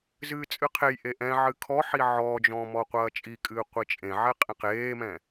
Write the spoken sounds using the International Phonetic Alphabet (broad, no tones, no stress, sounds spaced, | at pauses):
z ɨː t͡sʼ ɨ qʰ e j ʔ e ʔ ɛ̃ ʕ ɨ kʰ ɔ ħ i ʕ ɔː d͡ʒ ɔ̃ m ɔ qʷ ɐː t͡ʃʼ i kʼ ɨː qʷ i t͡ʃʼ ẽ ʕ ɛ qʼ ẽ q eː m ɛ̃